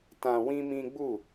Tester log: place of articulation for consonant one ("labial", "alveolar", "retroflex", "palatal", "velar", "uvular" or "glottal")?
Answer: alveolar